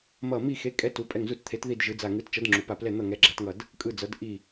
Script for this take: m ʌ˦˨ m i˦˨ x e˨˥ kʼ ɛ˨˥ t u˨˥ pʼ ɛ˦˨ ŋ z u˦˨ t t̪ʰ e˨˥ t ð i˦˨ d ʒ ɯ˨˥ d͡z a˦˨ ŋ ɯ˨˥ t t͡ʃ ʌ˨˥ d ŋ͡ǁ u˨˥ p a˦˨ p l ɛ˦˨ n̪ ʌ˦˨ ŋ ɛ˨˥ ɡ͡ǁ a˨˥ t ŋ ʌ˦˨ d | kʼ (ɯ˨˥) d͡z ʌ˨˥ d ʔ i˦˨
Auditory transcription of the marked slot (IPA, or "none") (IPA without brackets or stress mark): ɯ˦˨